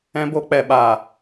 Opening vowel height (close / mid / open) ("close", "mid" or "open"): mid